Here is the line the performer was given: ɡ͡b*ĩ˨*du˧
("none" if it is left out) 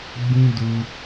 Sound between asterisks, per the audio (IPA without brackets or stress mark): ĩ˦